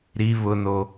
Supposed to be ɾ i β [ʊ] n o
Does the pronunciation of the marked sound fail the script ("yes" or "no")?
no